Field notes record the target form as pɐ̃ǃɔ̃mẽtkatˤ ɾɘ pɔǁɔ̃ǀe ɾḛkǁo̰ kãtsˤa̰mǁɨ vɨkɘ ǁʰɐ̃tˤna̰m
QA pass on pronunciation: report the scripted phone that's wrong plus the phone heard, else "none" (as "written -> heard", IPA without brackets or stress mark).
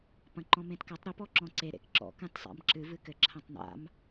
o̰ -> ɔ̰